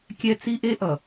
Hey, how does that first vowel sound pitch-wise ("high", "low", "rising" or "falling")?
high